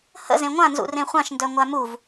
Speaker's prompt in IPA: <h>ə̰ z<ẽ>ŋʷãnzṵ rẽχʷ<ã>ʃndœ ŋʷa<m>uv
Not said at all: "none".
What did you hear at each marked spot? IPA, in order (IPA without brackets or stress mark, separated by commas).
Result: h, ẽ, ã, m